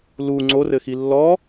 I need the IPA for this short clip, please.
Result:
l u ŋ͡ǀ o r ɘ x i lː ɔ

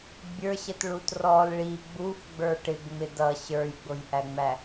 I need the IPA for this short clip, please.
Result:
bʲ ə˞ ɕ ə t ɭ u t r ɔ l ɭ i ɡ͡b u f ɡ͡b ə˞ ʈ ɪ ɡ ŋ͡m ɪ d ʌ ɕ ə˞ j ɡ͡b ʊ j ʔ æ ŋ͡m æ

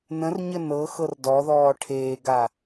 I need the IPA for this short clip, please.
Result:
n ə̃ r ɲ ə n ɤ x ɤ r d ɔ ð ɔː ʈʰ eː ɡ a

